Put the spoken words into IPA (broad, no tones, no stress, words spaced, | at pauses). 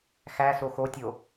xæso xotʲo